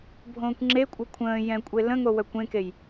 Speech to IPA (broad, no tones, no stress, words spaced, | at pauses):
bʱõːkʷŋ͡ǁekʷʼɤ kʷʰə̃ː jɛ̃kʷʼe lə̃ŋo wœkʷẽkej